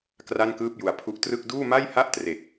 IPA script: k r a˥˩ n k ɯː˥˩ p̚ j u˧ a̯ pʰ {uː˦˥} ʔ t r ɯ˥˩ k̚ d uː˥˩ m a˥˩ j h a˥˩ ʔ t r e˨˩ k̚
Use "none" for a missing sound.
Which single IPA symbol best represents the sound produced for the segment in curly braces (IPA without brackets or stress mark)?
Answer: u˦˥